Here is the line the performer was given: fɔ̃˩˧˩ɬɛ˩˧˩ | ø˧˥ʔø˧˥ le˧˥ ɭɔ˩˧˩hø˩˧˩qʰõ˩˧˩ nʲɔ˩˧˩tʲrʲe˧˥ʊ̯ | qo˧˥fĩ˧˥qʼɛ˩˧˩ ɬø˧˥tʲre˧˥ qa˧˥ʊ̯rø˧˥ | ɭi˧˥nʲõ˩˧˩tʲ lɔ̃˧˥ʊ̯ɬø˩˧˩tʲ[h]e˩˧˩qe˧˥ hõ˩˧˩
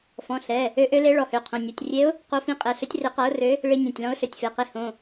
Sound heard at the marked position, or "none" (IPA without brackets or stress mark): f